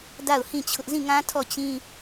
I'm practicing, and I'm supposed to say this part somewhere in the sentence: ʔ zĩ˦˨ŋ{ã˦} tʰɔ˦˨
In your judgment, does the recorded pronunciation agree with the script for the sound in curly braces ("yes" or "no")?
yes